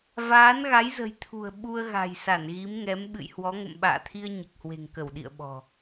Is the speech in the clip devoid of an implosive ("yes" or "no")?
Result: no